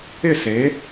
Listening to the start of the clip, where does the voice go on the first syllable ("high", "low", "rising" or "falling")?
falling